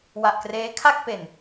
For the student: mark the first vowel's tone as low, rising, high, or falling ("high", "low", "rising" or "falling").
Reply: low